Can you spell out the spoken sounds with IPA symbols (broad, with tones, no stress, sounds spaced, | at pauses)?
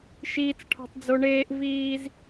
ʃ iː˦ t͡s ʈʰ ɔ̤˦ tˤ d͡z o˦ ɳ eː˦ ʔ v iː˦ z